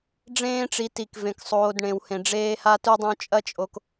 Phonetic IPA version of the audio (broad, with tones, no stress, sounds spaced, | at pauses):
ɖ͡ʐ ẽː˦ ʈ͡ʂ i˨ t i˩ k v ẽ˩ k sˤ oː˨ d ɳ ẽ˨ w h ẽ˨ ɖ͡ʐ eː˥ h a˦ t u˦ dˤ õ˦ t͡ʃʼ ɐ˥ t͡ʃʼ o˦ k